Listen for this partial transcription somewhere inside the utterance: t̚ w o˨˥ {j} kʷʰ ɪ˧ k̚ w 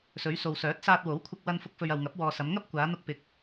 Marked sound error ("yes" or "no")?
yes